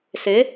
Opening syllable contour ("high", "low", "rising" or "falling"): rising